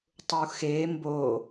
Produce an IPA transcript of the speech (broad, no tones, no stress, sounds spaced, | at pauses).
tˤ u x e m b o